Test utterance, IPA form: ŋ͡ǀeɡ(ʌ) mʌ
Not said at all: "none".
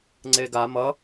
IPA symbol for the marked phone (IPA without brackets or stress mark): a